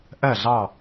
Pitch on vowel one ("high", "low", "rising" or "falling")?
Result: falling